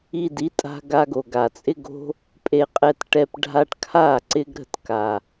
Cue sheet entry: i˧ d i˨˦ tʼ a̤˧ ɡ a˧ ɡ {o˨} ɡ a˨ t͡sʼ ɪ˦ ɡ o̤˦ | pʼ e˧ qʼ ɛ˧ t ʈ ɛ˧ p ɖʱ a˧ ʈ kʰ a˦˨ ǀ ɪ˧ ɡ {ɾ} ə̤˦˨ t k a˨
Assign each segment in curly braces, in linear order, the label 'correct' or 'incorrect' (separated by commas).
correct, correct